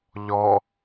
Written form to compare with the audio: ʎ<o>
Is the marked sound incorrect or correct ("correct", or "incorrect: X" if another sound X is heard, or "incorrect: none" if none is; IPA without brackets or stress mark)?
incorrect: ɔ